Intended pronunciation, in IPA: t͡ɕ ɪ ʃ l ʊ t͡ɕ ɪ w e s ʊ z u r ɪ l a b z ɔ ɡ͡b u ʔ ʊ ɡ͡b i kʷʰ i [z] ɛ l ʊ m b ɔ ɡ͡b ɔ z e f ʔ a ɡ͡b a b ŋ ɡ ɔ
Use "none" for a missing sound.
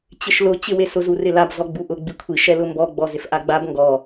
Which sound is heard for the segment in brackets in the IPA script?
ʃ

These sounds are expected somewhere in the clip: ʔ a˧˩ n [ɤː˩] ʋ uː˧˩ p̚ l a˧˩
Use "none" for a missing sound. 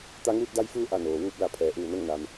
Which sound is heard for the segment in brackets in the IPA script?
oː˩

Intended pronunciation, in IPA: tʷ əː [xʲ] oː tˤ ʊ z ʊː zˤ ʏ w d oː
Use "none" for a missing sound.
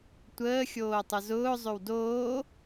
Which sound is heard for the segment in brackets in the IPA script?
xʲ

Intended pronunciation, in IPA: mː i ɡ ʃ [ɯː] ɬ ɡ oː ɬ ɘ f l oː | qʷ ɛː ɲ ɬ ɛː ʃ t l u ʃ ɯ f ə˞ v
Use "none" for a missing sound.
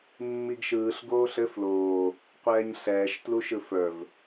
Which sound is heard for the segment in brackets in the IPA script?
ɯː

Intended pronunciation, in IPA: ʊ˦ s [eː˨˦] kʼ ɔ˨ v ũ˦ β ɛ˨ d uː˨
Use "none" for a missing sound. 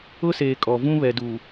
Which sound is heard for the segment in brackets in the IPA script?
eː˨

